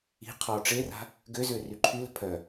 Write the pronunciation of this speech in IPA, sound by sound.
i̤ qʰɔ ʈ͡ʂera̤ | ɡøzø ryǃʰylə̤ pʰœ

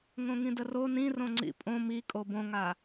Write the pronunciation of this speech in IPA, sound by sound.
ŋõŋĩdəro nĩrõŋ͡ǀḭ pʼõ mikʼo bõŋa

